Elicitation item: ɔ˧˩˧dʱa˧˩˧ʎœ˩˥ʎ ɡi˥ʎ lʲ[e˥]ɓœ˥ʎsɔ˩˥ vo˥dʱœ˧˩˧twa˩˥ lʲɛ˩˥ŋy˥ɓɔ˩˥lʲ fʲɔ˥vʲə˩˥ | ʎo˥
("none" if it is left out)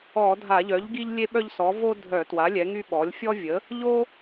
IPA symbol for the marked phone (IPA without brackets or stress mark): e˥